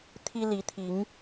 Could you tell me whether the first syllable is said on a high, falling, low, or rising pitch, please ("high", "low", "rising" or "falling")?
high